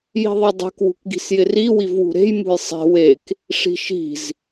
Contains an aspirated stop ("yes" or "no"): no